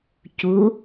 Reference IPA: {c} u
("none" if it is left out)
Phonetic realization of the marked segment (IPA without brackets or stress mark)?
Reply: c